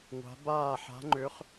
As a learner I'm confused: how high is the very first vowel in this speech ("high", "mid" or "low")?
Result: low